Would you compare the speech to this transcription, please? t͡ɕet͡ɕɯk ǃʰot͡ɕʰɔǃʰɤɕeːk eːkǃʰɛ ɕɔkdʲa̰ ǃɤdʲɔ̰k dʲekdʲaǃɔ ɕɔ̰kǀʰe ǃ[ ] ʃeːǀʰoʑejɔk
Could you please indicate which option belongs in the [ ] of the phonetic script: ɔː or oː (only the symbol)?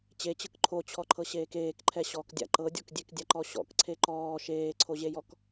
ɔː